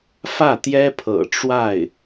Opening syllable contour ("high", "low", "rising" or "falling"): falling